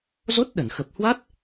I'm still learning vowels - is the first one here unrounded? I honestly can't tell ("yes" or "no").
no